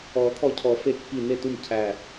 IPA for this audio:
ɔː˨˩˦ t̪ʰ ɔ˧˩ cʰ ɔ˨˩˦ f e˧˩ kː i˧˩ n e˥˩ t u˥˩ m cʰ æ˧˩

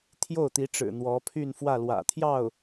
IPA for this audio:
t̪ʰ j o˥˩ ʊ̯ t̪ i˧˥ ʈ͡ʂ ɻ̩˨˩ n̪ w ɔ˧˥ pʰ y˥˧ n f w ä˥˩ l w ä̰˨˩ t̪ʰ j ɑ˥˩ ʊ̯

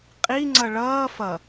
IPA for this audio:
qʼ i ŋ͡ǀ ʌ ɭ ʌː f ʌ

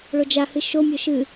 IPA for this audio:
ɭ o d͡ʒ a h ɨ ʃ o mʲ o ʃ ɨ

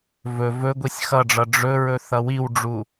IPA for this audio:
v ɵ v ɵ ɡʷ i sʲ x ʌ ɖ͡ʐ ʌ ɖ͡ʐ ɵ ɹ ɵ θ ʌ w i w ɖ͡ʐ u

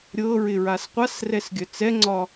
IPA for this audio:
ɾʲ ɤ ɹ ɪ ɹ a s qʷ a s r ɛ s ɡʲ œ t͡s ɛ ŋ͡ǀ ɒ

